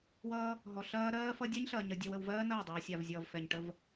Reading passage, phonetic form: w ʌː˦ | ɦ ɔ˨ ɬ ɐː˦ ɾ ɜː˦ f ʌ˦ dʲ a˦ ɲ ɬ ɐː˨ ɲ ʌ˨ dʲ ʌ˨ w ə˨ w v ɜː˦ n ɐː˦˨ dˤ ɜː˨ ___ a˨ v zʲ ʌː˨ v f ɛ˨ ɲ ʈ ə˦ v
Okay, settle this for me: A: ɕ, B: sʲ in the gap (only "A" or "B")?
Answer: B